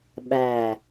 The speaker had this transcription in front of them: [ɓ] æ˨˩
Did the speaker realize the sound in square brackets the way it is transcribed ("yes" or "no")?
yes